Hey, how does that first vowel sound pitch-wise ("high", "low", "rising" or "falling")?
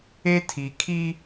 high